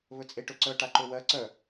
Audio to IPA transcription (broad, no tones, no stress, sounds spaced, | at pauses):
β ɵ t͡sʼ e ʈ ɵ ǀ œ ʈ a ǃ ɵ w ɜ ǀ œ